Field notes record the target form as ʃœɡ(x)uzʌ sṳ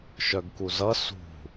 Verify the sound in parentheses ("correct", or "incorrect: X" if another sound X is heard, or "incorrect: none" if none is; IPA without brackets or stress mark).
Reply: incorrect: k